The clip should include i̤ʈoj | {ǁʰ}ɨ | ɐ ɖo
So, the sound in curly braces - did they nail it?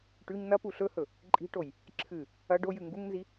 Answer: yes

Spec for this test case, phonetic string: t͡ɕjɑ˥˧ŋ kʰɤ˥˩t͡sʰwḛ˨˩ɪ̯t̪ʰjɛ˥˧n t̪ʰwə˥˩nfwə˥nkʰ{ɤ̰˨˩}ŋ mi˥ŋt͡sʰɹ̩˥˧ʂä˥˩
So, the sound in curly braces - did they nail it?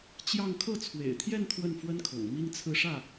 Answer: yes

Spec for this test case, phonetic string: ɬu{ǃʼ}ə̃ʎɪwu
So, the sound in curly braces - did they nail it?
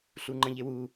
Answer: no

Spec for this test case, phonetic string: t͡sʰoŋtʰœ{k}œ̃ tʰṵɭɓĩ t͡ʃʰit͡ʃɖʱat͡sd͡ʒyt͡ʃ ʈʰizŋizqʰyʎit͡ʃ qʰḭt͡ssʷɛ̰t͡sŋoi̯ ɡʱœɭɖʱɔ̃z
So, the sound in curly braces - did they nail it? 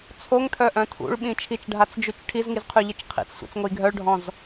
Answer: no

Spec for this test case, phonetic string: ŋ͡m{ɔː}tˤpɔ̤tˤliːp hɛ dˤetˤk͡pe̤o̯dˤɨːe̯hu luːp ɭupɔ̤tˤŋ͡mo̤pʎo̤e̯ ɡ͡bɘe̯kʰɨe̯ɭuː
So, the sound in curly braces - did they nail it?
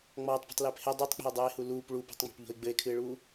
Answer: yes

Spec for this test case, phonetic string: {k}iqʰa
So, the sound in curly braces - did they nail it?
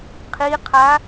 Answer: no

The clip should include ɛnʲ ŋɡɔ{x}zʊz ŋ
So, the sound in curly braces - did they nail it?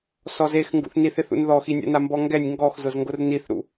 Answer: yes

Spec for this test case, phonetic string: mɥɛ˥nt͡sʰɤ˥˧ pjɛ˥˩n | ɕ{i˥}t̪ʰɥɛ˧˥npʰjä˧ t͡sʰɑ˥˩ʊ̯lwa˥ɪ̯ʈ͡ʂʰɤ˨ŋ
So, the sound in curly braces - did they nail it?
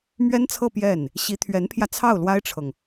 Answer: no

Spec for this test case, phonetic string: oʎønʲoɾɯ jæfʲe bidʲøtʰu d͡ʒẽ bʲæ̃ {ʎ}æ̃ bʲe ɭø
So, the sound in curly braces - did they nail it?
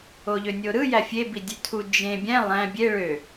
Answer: no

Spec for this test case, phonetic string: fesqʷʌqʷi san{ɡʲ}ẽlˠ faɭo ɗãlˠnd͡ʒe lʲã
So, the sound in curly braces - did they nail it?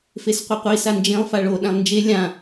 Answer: no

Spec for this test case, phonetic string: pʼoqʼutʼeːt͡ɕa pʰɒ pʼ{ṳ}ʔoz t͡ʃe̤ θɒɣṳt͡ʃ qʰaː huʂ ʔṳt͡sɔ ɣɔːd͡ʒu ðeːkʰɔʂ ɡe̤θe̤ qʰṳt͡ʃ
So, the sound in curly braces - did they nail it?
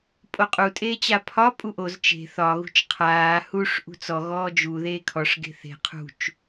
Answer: no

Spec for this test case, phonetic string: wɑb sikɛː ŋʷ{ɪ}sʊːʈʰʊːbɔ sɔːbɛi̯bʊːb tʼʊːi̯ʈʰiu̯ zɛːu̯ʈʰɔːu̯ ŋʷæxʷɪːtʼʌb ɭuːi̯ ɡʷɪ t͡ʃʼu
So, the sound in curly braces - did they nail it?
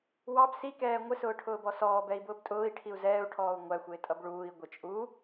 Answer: yes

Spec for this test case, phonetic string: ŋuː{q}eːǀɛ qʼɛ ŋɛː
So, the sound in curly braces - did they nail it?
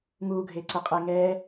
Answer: no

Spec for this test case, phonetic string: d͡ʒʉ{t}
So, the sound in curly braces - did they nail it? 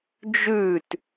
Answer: yes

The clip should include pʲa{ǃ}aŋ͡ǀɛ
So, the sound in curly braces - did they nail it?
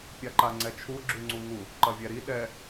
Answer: yes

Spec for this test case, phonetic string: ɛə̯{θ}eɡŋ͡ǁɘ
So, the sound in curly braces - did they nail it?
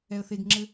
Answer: yes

